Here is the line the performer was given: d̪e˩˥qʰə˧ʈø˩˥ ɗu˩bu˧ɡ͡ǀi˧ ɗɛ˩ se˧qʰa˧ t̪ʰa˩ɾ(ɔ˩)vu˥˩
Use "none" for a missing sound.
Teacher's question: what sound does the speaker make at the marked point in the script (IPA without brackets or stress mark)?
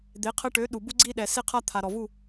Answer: ɔ˩